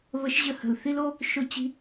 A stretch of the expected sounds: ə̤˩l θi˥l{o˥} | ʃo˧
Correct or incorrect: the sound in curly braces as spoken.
correct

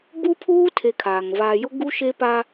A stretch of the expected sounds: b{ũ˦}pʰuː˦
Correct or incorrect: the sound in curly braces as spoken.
incorrect: u˦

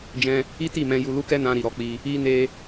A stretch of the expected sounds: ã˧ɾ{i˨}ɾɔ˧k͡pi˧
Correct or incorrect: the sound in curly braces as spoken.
correct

